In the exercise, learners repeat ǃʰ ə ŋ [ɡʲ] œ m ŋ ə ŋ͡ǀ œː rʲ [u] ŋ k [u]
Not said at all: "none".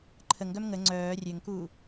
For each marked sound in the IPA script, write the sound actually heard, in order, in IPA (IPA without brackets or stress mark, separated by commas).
ɡ, ø, uː